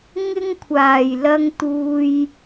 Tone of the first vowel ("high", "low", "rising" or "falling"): high